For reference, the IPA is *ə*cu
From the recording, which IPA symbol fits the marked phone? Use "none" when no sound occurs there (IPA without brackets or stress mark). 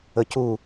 ə